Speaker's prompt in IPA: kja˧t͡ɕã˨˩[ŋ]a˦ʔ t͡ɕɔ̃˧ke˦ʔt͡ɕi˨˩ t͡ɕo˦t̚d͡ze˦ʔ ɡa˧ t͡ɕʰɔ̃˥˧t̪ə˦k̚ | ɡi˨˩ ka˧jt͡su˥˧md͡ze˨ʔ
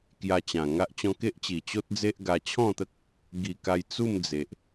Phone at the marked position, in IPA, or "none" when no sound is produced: ŋ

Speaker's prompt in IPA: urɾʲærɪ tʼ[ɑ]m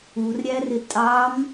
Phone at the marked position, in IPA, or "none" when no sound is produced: ɑ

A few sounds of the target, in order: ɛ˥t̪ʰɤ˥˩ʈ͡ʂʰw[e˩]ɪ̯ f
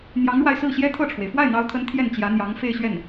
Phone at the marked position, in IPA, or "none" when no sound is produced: e˩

